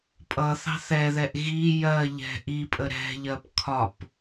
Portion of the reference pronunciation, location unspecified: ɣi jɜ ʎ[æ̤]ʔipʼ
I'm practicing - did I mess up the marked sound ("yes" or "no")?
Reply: yes